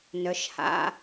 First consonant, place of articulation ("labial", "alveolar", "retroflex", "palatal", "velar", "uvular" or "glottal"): alveolar